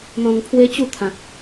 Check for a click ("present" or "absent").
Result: absent